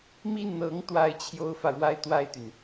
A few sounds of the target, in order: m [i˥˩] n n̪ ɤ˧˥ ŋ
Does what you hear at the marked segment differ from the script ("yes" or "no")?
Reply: no